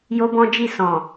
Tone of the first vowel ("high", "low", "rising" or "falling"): high